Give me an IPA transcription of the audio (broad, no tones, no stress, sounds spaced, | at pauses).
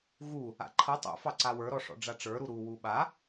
ɣ u | a̰ ǃʰ ʌ tˤ ṵ f ɑ ǀ a w ə˞ ɾ ɔ ʂ ɔ̰ ɖ͡ʐ a ʈ͡ʂ ə˞ ɾ u ɾ u w u ɓ a